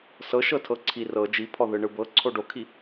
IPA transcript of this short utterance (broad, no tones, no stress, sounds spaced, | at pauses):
s ɤ ʃ ɤ tʰ ɤ ǀʰ i r ɤ d͡ʒ i pʰ ɔ ð ɯ ɳ ɯ b ɤ ǀʰ o ɖ o kʰ i